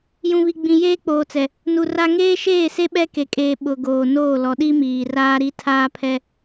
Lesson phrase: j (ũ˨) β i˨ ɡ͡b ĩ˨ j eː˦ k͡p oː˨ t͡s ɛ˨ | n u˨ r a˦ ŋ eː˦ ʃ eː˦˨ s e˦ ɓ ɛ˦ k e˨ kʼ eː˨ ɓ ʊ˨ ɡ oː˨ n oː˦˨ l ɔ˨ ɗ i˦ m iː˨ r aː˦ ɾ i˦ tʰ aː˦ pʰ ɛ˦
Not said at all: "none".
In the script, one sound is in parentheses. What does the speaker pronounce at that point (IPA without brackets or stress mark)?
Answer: ũ˨